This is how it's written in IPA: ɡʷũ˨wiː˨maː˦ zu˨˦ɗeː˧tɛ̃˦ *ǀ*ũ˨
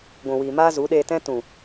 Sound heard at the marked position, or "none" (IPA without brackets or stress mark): t